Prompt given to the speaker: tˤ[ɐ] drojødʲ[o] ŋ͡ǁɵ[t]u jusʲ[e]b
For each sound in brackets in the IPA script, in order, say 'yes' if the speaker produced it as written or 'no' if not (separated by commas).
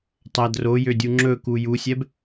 yes, no, no, no